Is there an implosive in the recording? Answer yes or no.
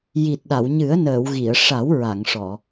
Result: yes